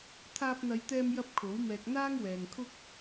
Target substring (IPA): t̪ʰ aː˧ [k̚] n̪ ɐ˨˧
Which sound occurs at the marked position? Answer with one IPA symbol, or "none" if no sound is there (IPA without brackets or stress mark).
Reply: p̚